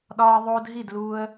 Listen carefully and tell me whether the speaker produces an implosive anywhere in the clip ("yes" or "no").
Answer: yes